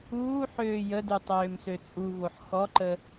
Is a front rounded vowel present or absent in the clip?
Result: present